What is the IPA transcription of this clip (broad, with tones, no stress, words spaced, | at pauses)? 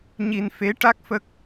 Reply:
ɲi˧n fe˧˥ ʈa˦˥k̚fə˦˥k̚